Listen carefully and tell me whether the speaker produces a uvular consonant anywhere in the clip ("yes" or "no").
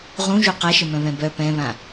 yes